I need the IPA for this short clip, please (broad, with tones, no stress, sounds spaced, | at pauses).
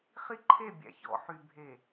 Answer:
χ i˦ ǃʰ e˦˨ bʲ æ̰˨ ç ɔ̰˨ ħ y˨ bʱ e˨